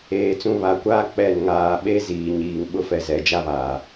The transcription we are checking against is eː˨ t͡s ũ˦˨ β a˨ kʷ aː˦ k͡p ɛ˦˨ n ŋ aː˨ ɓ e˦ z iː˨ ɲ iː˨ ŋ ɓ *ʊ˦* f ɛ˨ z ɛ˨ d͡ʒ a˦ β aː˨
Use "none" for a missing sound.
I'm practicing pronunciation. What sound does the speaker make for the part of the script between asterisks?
ʊ˦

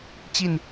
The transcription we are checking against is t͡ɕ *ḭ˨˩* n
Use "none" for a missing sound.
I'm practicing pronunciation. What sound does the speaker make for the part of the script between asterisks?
i˥˨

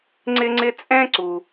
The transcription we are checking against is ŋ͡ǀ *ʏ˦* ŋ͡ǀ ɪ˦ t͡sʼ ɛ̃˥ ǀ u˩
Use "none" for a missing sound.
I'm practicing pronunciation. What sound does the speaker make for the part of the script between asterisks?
ɪ˦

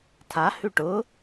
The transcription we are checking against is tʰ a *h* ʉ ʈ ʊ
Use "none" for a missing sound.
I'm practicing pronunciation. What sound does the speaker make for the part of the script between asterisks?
h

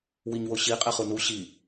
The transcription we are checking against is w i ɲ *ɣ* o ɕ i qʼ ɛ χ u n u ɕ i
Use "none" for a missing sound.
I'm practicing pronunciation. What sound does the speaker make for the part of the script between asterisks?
w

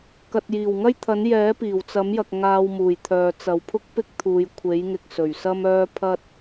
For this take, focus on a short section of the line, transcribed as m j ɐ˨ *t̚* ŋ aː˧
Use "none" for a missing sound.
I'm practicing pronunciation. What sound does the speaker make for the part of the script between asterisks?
k̚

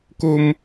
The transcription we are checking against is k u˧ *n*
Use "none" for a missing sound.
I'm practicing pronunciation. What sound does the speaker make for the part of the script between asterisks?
m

